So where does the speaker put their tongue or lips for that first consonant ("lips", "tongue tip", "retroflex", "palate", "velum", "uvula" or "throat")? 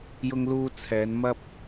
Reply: palate